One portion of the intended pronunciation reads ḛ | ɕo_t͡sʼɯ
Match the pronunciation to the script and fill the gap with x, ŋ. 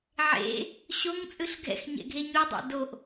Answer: ŋ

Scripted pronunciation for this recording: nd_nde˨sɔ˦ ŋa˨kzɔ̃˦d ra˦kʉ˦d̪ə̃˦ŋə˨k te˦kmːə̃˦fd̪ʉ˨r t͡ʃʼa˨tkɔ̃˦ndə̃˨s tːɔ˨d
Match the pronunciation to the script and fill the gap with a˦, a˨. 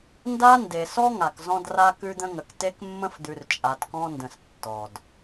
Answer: a˦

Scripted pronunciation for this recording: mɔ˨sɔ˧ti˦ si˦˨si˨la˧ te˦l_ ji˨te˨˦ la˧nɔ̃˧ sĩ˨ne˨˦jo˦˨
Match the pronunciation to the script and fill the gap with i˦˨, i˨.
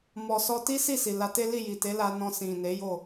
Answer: i˦˨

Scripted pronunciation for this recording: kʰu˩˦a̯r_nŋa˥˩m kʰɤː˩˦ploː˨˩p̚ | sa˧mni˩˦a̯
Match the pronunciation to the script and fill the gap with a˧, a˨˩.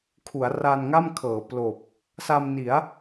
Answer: a˧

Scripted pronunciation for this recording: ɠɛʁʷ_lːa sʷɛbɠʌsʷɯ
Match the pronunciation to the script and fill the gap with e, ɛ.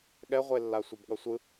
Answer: e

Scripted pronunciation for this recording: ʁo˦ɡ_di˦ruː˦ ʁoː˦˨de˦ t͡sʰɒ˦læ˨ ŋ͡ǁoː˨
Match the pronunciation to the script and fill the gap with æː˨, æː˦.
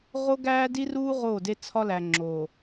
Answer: æː˦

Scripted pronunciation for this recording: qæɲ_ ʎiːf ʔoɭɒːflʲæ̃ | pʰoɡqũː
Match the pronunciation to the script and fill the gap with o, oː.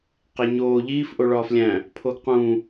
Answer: oː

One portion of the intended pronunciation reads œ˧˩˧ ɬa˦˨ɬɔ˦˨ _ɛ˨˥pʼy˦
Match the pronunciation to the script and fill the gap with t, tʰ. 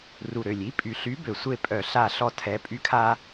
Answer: tʰ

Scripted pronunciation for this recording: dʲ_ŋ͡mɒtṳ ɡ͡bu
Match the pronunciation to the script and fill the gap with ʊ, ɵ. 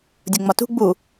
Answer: ʊ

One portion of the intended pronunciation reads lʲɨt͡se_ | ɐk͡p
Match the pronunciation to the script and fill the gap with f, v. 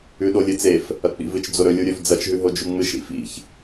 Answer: f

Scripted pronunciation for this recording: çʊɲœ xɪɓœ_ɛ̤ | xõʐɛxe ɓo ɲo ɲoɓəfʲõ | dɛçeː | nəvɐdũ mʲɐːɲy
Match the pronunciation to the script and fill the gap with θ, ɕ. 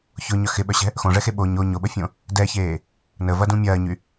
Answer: ɕ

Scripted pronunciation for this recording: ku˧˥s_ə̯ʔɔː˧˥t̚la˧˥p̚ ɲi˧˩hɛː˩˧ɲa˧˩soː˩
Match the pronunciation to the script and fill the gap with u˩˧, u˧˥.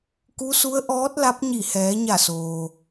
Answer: u˧˥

